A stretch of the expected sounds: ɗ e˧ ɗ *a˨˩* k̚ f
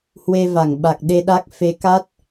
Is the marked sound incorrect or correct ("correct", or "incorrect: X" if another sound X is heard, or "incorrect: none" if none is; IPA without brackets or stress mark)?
incorrect: a˦˥